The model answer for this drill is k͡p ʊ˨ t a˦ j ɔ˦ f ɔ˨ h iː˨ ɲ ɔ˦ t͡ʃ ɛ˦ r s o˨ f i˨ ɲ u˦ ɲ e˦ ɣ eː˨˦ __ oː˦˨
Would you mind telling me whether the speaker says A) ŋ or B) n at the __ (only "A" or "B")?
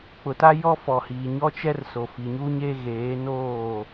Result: B